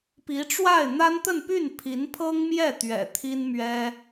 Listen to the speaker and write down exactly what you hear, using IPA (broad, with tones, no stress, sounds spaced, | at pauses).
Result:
p i˧˥ ʈ͡ʂ w a˥˩ ɪ̯ n̪ a˥ n t̪ ə˥˧ n p y˥˩ n pʰ i˧˥ n pʰ ɤ˥ ŋ m j ɛ˥˩ t̪ ɥ ɛ̰˨˩ t̪ʰ i˥ n m ɥ ɛ˥